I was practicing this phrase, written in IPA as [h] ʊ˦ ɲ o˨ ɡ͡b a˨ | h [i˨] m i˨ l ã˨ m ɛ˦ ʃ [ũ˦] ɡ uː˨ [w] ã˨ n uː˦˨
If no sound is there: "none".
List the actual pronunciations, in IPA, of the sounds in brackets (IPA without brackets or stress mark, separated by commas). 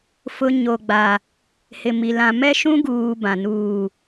f, ɪ˨, ũ˦, b